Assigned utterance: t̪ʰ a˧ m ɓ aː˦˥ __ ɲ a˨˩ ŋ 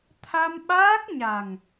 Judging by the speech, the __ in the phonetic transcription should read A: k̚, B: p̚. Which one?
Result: A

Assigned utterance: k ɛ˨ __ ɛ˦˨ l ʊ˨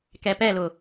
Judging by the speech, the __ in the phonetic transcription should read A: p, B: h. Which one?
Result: A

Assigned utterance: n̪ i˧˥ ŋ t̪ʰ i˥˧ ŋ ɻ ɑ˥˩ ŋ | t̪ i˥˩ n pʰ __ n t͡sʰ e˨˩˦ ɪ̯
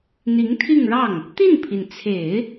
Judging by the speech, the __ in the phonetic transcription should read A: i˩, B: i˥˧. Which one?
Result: A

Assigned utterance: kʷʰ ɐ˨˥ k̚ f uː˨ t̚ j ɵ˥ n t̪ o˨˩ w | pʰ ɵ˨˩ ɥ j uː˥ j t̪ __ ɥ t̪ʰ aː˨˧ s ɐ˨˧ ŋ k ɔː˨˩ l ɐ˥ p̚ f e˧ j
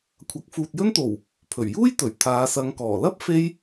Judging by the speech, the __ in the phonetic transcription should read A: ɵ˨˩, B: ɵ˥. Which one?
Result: A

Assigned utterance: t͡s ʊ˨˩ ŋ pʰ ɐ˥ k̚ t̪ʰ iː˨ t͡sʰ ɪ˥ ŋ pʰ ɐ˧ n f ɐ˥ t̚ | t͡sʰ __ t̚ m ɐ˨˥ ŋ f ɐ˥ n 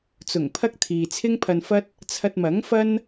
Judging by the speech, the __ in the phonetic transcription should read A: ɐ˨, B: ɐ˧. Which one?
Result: B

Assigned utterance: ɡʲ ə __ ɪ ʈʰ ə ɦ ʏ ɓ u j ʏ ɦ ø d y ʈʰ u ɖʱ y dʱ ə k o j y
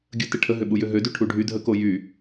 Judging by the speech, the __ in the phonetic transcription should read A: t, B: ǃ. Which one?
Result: A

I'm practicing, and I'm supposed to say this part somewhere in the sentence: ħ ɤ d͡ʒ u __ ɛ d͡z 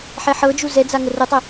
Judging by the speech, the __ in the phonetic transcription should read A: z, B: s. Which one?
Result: A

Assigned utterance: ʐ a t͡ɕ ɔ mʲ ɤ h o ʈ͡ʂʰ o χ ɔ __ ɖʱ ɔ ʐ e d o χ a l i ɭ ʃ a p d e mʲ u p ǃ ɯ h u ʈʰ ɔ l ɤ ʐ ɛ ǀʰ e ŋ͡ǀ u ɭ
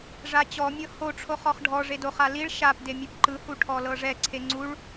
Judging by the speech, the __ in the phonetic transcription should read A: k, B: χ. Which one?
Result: B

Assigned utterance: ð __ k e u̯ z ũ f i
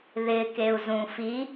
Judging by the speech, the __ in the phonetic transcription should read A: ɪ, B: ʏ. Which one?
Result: A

